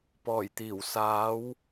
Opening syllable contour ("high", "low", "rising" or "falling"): low